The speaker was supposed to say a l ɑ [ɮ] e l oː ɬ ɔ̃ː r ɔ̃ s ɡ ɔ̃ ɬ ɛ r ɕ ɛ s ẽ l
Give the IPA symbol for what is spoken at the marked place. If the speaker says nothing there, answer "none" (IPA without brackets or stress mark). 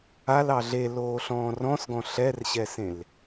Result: ɮ